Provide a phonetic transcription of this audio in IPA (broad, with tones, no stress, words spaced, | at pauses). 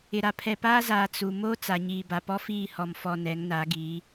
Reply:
ɪ˨ɾa˨ pʰɛ˨paː˦zaː˨ t͡su˨ moː˦ t͡sa˨ɲiː˨ ba˨pɔ˦fiː˦˨ hɔ˨mfɔ˨ nɛ˨˦ŋna˨˦ɡi˨˦